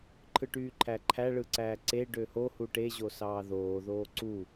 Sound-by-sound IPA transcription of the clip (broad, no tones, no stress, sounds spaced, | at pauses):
ǃʰ ɯ ʈ yː ǃʰ æ ǃʰ æ ɭ ɯ ǀ æː ǀ e ɖ ø h o h u ʈ e ʑ o s ɑː ð oː ð oː ǀ u